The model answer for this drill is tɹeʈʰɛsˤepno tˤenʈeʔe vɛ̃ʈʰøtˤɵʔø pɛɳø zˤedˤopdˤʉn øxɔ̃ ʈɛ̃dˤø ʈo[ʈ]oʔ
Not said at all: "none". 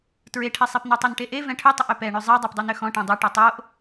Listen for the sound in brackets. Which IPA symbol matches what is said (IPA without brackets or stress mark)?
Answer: tˤ